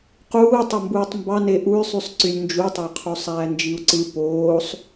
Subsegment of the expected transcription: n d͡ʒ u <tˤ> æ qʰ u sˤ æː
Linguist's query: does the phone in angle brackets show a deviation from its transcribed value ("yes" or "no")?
no